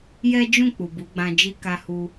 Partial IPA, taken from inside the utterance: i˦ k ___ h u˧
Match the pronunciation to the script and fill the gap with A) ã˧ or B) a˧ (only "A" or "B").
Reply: B